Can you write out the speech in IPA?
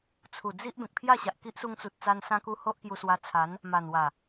t͡sʰ u˨˩ d͡z i˦ ʔ b ẽ˨ k̚ pʰ j a˥˧ ɕ a˨ ʔ k i˦ ʔ s u˧ ŋ t͡s u˨ t̚ t͡s a˧ n s ã˧ k u˧ h o˦ ʔ k j u˧ s w a˧ t͡sʰ a˨˦ n | m a˨˩ n w a˨˩

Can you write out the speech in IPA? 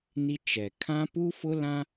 n i˦ t͡ʃ ɛ˨ kʰ ã˦ p u˦ f ʊ˦ l ã˦

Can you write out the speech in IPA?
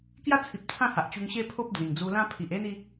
k j a˦ t͡sʰ i˨ p̚ t͡sʰ ã˦ h a˨ ʔ t͡ɕ u˧ ŋ ɕ e˦ pʰ o˦ p̚ d͡z ĩ˨˩ ŋ d͡z u˧ l ã˦ pʰ i˨ ʔ e˦ n i˧

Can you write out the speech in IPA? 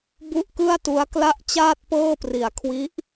b u˥˩ ʔ k ɯ˥˩ a̯ t u˦˥ a̯ k l a˥˩ ʔ t͡ɕ aː˥˩ t̚ p ɤː˥˩ p r i˨˩ a̯ kʰ w i˦˥ ʔ

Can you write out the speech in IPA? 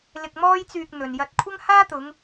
l ɪ˧ k̚ m ɔː˥ j t͡s yː˧ k̚ n̪ ɵ˨ n j ɐ˧ t̚ kʷʰ ɐ˥ ŋ h aː˥ t̪ ʊ˨˧ ŋ

